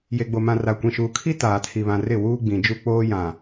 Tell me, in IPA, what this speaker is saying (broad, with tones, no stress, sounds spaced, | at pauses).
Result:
j e˨ ɡ͡b o˨ m ã˨ r a˨ kʷ ĩ˨ ʃ uː˨ kʰ i˦ t aː˨ tʰ i˨ β ã˨ r ɪ˦˨ w uː˦ ɡ͡b ĩ˨ d͡ʒ u˦ k͡p oː˦ j ã˨